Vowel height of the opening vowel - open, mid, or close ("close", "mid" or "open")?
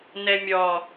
mid